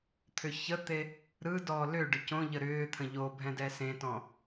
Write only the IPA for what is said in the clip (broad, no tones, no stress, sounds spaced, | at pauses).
t̪ʰ ʏ ç ə t̪ e | ɾ ɯ d ɔ l ʏ ɖ ʏ c õ ʎ ə ɾ ʏː t̪ʰ ə̃ ʎ o bʱ ɛ̃ d ɛ s ẽ t ɔ̃